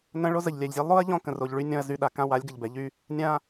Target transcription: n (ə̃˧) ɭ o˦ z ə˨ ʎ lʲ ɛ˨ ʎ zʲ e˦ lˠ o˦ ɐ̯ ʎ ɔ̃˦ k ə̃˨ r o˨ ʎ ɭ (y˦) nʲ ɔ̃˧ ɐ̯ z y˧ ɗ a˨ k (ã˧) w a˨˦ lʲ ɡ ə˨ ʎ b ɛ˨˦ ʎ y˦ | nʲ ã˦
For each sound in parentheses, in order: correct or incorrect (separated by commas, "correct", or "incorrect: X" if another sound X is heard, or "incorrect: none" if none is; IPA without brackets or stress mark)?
correct, correct, incorrect: ã˦